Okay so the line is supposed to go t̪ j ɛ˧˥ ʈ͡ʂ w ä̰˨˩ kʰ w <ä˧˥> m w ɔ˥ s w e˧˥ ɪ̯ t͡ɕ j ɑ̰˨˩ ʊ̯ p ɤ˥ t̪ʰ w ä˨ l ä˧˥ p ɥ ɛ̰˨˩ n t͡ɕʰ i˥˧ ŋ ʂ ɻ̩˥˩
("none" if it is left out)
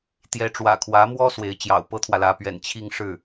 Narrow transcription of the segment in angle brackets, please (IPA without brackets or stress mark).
ä˧˥